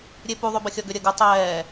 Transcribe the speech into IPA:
ɾʲepuðˤøbə xʲɔɡøɾʲɐɡə tˤɛː

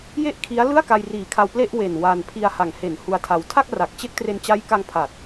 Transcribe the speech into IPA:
je˥˩ʔkʰi˦˥a̯ lɯ˥˩a̯ka˧jriː˨˩kʰa˧w ple˥˩ʔwe˨˩n wa˧n pʰi˧a̯ha˨˩ŋhe˨˩n hu˧a̯tʰa˧w tʰa˥˩k̚ra˨˩k̚t͡ɕe˦˥k̚tre˧n t͡ɕa˦˥jka˧ŋ pʰa˨˩t̚

